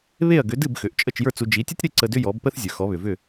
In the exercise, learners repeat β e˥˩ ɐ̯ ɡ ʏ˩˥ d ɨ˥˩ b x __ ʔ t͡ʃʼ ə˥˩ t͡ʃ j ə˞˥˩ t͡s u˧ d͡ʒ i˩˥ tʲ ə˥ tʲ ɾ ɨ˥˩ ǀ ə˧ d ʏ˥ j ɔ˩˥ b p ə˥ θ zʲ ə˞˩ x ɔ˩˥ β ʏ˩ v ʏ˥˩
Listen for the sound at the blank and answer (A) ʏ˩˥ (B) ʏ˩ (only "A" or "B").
B